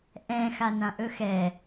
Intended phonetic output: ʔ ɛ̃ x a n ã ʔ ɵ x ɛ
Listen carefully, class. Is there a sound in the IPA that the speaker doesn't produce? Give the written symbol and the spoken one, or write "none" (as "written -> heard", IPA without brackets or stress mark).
none